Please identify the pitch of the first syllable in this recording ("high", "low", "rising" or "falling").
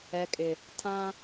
low